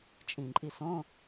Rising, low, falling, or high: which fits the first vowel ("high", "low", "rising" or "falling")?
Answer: low